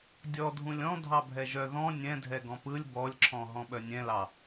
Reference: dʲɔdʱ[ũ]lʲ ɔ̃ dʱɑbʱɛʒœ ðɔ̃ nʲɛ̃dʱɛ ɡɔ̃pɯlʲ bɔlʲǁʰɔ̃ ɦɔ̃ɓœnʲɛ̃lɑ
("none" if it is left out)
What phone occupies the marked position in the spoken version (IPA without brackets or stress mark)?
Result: ũ